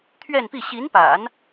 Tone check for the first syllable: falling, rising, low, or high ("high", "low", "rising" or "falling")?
falling